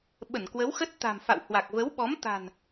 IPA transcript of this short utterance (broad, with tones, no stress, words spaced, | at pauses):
ɓə˧˩nkwə˨˦wxə˦˥t̚ t̪a̤˨˩mfa̰˧˨w hwa˨˩k̚və˨˦wɓɔ˨˦m t̪a̤˨˩n